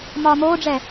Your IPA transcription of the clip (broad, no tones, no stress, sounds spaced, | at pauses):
m ɒː m oː ɖ͡ʐ ɛ